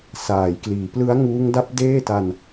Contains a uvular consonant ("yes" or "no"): no